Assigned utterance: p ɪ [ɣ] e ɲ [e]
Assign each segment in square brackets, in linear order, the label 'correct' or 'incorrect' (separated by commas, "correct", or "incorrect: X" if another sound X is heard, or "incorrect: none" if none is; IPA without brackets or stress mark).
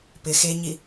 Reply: incorrect: x, incorrect: i